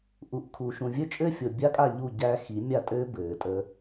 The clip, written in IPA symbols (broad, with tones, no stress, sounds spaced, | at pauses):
ʔ u˨ ʔ kʰ u˨ ʃ ũ˨ vʲ ɘ˦ t͡ʃʼ ɘː˦ fʲ o˨ bʲ a˦ kʼ a˦˨ ʎ u˦˨ ɟ æ˦ x i˨˦ mʲ a˦˨ tʼ ɘː˦ b ɘː˨ tʼ əː˦